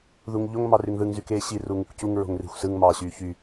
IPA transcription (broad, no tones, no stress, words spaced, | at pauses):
ðuŋʎoŋ mɑryŋðɯŋ zykeːɕi ruŋukcuŋ ɹo̤ŋri̤xʷsɯŋ mɑːɕyːçy